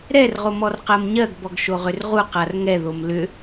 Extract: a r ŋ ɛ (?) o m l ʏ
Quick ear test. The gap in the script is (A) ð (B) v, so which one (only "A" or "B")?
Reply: A